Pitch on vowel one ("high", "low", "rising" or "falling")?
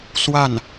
falling